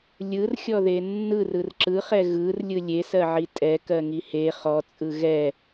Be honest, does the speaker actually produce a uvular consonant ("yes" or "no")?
yes